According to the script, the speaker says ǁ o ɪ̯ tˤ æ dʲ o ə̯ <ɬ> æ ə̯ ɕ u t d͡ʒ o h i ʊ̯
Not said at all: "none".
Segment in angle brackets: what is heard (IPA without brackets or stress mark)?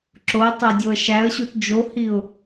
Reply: ʃ